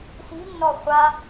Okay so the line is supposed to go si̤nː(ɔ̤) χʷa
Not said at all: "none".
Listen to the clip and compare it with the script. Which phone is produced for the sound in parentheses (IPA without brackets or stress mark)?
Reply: ɔ